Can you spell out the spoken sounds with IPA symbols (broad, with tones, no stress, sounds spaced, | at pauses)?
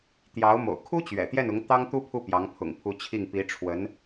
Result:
t̪ j ɑ˧˥ ʊ̯ m o̰˨˩ ʊ̯ kʰ u˥ t͡ɕ ɥ ɛ̰˨˩ t̪ j ɛ˥˩ n ʊ˧˥ ŋ t̪ ɑ˥ ŋ t̪ u˥ pʰ u˥˩ p j ɑ˧˥ ŋ pʰ ʊ̰˨˩ ŋ pʰ u˧˥ t͡ɕʰ i˥˩ ŋ p i˧˥ ʈ͡ʂʰ w ə˧˥ n